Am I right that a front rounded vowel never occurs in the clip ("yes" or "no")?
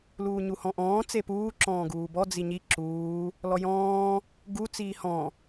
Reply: yes